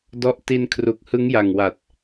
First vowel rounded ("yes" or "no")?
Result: yes